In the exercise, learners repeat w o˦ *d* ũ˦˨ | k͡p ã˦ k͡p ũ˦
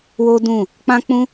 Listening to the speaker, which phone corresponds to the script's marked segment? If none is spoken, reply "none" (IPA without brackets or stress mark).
d